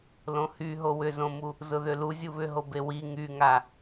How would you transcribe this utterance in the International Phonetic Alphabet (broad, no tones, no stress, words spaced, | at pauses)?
lõhyɦo wʏzõmu | zʊðʏlu zʲuβʏɦo bewi ŋyŋa